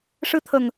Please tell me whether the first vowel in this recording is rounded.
no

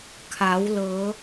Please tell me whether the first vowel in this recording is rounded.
no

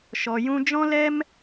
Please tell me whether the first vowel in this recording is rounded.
yes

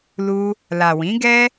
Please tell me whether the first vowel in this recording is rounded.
yes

